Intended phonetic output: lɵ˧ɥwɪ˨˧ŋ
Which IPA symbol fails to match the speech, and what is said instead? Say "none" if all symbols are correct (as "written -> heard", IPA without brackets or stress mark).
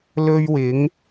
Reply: none